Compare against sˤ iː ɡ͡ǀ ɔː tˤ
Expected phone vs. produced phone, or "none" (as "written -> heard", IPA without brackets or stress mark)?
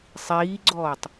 none